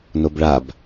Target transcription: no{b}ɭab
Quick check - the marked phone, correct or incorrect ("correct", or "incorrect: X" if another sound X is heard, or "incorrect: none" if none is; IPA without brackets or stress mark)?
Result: correct